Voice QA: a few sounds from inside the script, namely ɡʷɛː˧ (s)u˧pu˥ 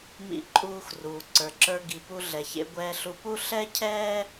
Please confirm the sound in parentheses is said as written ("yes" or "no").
no